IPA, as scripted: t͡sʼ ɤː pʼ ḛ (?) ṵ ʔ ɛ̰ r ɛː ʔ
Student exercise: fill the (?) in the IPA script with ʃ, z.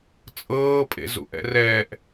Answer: z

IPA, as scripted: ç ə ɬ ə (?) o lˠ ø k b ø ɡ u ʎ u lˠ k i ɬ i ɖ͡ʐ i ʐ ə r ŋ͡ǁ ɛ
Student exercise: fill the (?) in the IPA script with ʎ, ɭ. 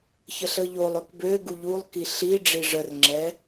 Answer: ʎ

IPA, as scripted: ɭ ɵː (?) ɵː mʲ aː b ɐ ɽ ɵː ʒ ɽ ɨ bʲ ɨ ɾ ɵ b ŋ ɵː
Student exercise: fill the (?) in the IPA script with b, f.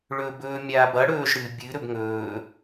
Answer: b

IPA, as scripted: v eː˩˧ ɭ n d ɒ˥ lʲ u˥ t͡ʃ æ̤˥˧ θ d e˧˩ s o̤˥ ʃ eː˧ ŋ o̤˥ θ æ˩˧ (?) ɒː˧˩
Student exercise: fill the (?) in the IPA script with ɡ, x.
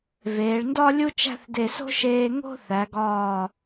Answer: ɡ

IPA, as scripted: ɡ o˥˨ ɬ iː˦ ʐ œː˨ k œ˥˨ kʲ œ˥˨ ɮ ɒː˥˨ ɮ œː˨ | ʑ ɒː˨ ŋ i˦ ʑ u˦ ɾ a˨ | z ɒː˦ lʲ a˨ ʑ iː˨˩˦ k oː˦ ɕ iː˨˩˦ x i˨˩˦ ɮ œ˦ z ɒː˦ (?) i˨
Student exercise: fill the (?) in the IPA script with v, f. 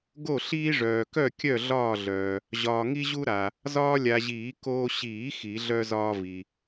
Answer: v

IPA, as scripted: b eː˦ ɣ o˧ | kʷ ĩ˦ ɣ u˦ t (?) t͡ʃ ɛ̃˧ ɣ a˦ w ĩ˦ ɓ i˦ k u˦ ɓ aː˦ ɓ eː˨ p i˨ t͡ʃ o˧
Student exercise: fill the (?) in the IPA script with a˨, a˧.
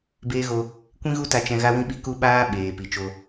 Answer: a˧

